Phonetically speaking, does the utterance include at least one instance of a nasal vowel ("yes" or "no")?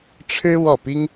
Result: no